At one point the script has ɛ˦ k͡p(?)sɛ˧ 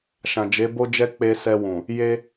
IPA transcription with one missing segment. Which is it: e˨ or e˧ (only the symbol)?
e˧